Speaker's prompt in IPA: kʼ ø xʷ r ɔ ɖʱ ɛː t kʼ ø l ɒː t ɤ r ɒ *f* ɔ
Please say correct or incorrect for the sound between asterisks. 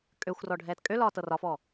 correct